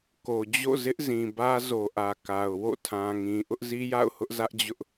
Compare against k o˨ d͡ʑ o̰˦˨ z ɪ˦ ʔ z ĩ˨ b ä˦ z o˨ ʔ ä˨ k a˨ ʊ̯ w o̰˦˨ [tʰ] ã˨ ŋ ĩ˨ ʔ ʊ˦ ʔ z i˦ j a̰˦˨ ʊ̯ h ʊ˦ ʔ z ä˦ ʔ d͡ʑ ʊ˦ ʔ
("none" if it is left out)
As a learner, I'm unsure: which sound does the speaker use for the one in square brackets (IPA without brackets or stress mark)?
tʰ